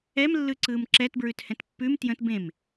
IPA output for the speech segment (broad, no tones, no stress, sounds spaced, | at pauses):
ɛ m lː ɯ ǀ ɯː m ǁ ɛ t b ɹ ʉ t h ɛ̃ t pː ʉ m t j ə̃ t b ẽ m